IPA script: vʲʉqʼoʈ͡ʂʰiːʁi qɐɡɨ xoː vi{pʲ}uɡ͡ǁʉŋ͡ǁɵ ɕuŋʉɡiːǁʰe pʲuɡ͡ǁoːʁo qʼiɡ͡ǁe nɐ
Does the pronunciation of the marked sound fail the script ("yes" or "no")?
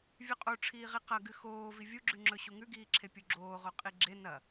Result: yes